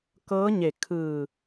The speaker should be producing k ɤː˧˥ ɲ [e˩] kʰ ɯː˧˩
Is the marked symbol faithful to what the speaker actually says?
no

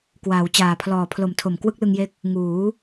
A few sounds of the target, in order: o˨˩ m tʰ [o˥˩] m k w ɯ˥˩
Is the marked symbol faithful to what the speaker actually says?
no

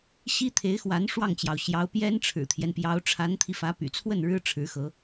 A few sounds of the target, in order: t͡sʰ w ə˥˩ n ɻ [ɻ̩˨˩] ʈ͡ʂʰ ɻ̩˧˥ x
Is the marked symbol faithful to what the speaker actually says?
no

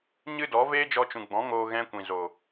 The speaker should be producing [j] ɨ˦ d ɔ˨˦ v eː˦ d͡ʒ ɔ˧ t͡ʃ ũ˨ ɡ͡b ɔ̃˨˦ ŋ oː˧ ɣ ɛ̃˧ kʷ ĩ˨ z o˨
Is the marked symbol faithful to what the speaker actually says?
no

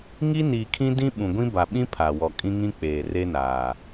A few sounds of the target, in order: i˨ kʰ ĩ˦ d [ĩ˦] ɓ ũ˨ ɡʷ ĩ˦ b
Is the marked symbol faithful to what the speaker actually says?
yes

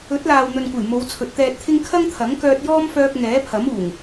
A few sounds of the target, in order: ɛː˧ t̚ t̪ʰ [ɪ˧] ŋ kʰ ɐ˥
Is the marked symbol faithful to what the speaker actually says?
no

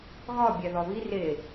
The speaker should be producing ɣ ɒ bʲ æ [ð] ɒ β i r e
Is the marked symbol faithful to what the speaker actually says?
yes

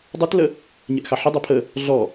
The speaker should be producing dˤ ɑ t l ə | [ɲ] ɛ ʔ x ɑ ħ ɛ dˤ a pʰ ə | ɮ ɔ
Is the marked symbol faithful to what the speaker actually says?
yes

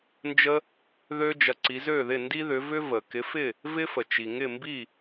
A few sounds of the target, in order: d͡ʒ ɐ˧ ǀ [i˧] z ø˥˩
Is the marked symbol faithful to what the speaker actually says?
no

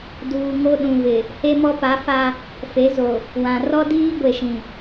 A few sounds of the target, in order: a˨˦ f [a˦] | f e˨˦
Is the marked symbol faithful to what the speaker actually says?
yes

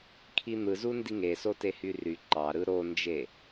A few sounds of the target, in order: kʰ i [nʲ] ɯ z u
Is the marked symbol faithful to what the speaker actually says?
no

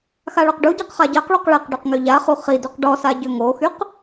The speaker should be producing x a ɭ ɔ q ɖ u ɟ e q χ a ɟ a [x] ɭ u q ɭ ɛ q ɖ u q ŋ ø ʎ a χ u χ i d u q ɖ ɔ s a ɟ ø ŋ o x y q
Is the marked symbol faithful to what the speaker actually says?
no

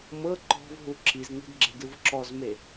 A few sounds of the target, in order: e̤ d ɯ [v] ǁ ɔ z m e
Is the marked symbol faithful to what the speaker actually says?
yes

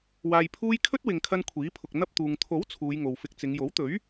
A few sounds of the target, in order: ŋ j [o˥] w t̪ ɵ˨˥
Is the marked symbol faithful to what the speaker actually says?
no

